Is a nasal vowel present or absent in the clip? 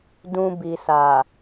present